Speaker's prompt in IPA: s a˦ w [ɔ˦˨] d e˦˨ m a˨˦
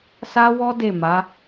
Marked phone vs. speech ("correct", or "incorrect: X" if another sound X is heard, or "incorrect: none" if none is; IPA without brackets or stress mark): incorrect: ɔ˦